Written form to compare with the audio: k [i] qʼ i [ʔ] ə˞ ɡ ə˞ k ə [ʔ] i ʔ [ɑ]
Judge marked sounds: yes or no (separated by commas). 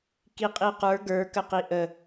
yes, no, no, no